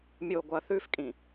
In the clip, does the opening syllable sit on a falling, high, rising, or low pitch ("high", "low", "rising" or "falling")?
low